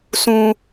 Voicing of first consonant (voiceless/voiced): voiceless